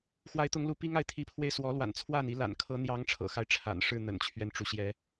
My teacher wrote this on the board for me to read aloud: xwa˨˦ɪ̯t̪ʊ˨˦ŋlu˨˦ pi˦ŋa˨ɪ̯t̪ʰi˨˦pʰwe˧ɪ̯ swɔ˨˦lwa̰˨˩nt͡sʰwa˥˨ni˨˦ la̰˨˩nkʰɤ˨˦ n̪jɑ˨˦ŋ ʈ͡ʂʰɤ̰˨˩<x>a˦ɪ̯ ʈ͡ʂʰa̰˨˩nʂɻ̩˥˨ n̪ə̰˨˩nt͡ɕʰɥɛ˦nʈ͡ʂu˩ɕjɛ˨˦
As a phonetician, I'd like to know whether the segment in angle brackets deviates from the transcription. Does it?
no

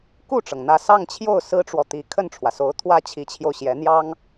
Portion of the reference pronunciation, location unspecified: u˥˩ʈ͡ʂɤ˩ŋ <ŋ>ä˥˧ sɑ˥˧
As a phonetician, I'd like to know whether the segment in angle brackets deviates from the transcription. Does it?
yes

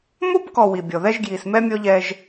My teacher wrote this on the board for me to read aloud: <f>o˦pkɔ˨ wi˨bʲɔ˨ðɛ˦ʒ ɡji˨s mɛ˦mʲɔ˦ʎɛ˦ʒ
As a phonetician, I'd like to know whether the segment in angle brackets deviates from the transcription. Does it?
yes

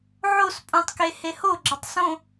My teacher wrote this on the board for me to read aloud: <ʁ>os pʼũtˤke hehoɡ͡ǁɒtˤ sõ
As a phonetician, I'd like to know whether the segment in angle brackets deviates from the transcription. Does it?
yes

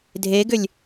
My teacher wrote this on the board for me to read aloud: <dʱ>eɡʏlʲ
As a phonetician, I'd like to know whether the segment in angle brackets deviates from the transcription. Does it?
no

